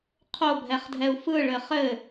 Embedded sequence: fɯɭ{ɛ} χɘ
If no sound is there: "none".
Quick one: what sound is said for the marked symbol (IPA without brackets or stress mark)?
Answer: ɘ